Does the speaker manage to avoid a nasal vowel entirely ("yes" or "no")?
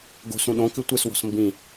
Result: no